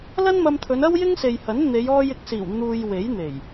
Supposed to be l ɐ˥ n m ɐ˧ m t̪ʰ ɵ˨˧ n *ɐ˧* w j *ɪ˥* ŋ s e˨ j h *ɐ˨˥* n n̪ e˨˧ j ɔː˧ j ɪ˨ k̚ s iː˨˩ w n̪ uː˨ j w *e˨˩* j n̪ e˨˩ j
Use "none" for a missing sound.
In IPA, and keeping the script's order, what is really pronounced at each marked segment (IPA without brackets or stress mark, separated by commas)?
ɐ˥, ɪ˥, ɐ˨˥, e˨˥